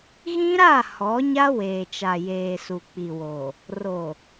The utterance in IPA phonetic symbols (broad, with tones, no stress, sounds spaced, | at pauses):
ɣ ĩ˦ ɾ a˦˨ h ɔ˨˦ ɲ a˦ w eː˨ t͡ʃ a˨ j eː˨ s u˨ k͡p i˨ w o˨ | r o˨